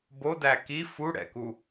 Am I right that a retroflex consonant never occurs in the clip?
no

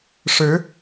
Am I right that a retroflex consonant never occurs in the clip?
no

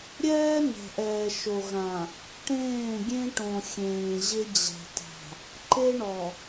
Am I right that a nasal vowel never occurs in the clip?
no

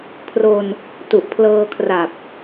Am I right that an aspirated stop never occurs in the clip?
no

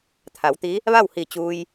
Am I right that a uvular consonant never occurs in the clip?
yes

